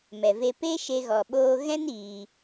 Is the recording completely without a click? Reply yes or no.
yes